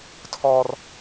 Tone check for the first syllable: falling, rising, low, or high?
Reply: high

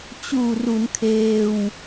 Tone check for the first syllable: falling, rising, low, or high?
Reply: low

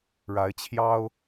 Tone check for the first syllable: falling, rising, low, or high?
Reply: rising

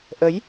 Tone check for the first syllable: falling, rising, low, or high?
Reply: rising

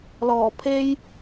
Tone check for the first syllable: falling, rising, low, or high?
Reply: low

